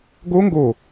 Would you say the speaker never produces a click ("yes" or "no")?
yes